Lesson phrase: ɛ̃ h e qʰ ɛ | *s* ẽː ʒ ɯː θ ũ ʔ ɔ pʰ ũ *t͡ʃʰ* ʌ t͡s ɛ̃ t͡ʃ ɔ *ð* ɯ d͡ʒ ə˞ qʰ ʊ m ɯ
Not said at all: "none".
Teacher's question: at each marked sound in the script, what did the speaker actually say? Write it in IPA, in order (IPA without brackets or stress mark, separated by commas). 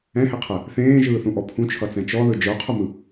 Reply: θ, t͡ʃʰ, ð